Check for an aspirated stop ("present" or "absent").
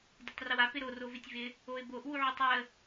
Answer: absent